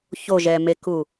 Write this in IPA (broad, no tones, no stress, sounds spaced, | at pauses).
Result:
ç o ʒ ɛ m e k u